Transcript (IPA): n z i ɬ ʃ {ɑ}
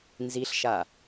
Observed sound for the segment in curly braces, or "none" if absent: a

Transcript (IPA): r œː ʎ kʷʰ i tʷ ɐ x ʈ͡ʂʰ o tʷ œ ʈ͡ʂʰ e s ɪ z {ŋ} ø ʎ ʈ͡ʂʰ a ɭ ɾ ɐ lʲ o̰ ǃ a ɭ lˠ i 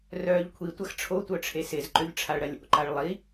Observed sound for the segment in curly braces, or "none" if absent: ǃ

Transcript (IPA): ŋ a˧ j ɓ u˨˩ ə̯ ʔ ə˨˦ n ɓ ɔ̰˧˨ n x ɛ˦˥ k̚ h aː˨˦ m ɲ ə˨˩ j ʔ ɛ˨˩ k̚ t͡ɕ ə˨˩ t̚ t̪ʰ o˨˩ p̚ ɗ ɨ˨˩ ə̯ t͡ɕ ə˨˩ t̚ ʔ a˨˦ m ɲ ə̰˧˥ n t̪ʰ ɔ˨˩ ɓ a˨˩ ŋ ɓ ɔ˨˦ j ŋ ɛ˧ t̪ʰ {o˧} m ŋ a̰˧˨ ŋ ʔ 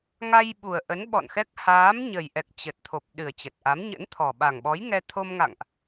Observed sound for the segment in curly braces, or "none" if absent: o˧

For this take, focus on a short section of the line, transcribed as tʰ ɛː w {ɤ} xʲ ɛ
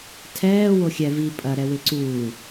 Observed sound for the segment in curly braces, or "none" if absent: o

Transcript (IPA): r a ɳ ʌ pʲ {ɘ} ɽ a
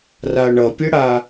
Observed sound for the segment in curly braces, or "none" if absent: ɘ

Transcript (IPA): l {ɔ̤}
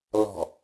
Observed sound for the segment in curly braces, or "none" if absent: ɔ̤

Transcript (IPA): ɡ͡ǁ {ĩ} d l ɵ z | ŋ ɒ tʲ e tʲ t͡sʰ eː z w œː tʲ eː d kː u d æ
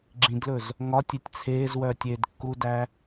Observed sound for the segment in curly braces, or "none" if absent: ĩ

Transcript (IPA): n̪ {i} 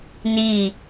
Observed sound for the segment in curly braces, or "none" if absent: i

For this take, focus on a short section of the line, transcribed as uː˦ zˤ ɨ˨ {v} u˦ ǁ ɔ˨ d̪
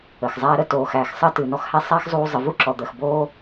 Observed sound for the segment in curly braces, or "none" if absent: v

